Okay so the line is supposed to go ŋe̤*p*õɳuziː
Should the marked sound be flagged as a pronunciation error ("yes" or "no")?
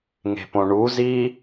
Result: no